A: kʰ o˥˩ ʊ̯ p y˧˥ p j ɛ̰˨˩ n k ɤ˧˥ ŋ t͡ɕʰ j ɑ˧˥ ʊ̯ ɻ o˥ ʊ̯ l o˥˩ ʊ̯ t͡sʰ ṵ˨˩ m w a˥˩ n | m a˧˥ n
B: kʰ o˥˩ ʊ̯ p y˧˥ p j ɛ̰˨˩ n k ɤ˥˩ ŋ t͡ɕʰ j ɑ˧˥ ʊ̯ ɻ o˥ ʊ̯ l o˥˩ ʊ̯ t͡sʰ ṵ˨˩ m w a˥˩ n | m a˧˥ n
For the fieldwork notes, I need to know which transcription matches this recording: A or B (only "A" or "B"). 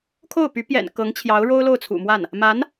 A